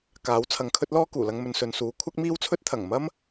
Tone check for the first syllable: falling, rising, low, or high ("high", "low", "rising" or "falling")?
rising